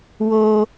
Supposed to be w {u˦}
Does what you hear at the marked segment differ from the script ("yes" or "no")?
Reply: yes